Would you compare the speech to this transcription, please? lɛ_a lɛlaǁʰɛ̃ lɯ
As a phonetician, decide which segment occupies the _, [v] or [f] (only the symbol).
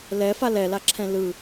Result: f